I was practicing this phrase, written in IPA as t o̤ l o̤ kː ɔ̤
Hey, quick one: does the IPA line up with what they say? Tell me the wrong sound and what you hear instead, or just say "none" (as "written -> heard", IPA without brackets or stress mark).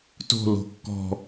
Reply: none